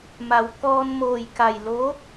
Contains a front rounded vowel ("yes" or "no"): no